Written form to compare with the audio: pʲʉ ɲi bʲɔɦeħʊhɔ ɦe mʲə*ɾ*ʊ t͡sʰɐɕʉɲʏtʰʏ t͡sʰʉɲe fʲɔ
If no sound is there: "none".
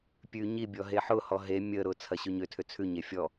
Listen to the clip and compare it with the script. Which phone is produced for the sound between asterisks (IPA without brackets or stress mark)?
ɾ